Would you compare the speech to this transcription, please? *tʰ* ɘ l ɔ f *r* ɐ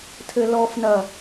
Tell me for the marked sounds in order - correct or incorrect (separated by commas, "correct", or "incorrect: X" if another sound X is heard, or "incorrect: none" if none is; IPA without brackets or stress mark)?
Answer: correct, incorrect: n